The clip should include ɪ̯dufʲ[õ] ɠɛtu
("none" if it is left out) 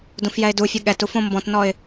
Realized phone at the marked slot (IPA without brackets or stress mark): o